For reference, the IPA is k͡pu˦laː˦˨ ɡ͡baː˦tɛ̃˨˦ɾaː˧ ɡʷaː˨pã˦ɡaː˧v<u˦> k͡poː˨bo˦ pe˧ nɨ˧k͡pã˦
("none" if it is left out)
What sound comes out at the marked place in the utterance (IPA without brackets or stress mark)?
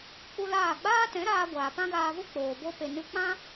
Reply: u˦